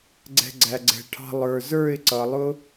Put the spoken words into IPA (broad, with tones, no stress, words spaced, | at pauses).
ɡ͡ǀɛ̤˧ɡ͡ǀæ˨ɡ͡ǀɛ̤˨ʈʰɑ̤˧ lˠə˞˨zə˞˦˨ɪ̯ ǀʌ˨lˠʊ˦